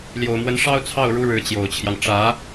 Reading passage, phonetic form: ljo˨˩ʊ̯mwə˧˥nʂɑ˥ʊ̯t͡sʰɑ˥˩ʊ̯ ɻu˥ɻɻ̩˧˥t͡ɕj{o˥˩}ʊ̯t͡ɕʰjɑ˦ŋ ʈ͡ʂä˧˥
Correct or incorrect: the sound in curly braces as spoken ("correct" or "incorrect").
incorrect